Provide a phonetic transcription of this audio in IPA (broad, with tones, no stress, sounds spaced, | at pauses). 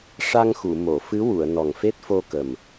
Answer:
ʂ a˧ ŋ x u˨˩˨ m o˨˩˨ f ɨ˧˥ w u˨˩˨ ə̯ n ɔ˨˩ ŋ f e˦˥ t̚ f o˧ k ə˨˩ m